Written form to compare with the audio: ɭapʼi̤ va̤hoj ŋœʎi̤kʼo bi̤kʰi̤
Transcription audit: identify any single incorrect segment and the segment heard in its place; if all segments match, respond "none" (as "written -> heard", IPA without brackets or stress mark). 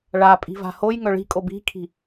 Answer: ʎ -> ɭ